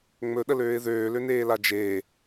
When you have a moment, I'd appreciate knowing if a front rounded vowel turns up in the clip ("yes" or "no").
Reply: yes